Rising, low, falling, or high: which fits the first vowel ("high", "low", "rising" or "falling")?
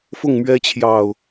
falling